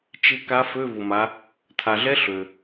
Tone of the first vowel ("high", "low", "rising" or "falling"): rising